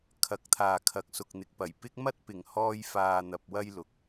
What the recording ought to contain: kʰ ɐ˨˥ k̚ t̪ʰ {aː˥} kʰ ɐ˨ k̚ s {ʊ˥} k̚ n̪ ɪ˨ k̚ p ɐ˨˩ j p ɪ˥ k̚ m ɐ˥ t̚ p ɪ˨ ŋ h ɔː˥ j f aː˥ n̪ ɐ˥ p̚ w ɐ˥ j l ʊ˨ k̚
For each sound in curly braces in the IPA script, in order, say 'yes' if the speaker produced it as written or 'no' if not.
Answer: no, no

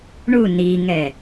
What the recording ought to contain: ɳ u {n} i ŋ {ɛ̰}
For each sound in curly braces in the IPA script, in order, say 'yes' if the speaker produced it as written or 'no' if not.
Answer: yes, no

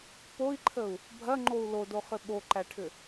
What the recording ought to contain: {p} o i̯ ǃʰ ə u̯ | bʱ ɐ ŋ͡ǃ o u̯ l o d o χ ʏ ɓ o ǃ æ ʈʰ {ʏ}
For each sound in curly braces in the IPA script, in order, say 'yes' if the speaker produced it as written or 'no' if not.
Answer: yes, yes

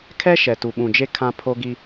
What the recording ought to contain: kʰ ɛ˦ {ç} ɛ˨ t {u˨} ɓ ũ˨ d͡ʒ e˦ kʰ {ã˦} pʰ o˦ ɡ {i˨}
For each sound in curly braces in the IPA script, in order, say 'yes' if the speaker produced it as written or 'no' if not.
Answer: no, yes, yes, no

